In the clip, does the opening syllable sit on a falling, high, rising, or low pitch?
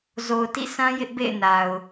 low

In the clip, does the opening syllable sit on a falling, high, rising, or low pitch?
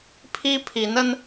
high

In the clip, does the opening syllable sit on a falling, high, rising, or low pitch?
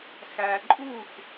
low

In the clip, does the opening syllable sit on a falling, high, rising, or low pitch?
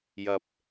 low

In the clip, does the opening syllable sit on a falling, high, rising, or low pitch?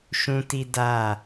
high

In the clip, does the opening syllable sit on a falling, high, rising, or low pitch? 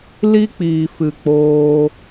high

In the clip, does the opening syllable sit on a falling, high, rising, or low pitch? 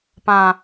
low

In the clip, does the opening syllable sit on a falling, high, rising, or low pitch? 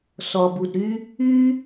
low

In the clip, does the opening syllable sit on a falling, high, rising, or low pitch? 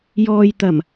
low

